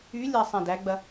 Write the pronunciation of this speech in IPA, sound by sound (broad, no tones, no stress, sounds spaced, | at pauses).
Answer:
y lʲ a sˤ æ̃ d æ ɡ͡b ɐ